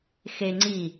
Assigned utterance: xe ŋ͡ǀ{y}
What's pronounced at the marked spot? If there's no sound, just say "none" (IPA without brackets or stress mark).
i